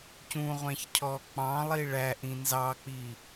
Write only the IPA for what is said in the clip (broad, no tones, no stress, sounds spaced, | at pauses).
c ũ ʁʷ æ̃ ç cʰ ɔ k͡p ɑ̃ lˠ i ɭ æ ʔ ĩ n z ɑ k͡p i